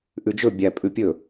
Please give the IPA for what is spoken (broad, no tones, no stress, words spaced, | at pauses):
ʔʉd͡ʒɵ bʲæ pʼʉpʲɵ